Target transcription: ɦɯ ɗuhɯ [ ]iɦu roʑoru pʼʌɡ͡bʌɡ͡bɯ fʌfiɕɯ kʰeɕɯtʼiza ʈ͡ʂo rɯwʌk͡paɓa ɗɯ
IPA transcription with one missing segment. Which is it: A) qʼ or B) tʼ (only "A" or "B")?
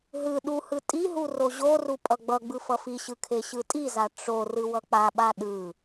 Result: B